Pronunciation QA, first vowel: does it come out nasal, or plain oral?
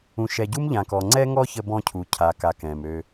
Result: nasal